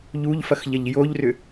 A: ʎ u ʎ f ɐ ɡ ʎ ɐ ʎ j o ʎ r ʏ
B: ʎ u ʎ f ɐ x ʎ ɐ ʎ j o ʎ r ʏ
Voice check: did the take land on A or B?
B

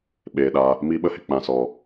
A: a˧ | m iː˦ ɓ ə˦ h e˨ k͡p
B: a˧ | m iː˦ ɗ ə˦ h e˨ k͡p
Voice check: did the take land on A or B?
A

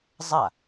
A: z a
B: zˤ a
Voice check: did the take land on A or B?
B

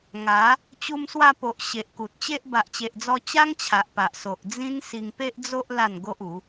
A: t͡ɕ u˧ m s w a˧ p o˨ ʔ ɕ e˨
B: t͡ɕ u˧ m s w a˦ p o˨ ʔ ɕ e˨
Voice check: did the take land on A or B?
A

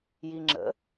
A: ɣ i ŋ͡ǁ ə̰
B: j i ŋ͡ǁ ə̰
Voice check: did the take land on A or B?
B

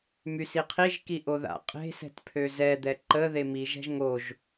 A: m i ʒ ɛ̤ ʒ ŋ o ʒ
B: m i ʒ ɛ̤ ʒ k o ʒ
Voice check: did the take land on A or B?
A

